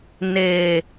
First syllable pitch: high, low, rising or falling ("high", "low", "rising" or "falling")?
low